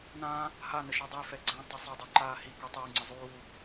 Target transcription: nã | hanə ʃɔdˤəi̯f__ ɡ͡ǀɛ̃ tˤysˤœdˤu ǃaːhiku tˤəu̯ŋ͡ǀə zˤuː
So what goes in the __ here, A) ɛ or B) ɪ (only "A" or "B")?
A